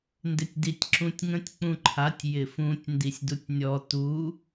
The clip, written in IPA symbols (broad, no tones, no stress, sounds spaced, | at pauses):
n d ɪ tʲ d i tʲ ǁ ũ tʲ ŋ ə̃ tʲ k͡p ũ ǃʰ a tʲ j ɪ f ũ tʲ n d i sʲ d u tʲ nʲ ɔ t u